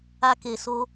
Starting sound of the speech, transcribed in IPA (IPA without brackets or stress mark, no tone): a